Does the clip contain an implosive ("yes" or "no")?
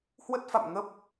no